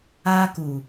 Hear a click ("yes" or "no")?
no